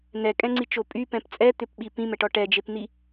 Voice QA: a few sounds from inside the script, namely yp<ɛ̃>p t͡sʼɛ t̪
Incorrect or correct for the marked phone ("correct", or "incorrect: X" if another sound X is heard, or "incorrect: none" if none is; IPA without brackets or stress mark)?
correct